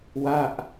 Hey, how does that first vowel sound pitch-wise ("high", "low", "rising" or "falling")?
falling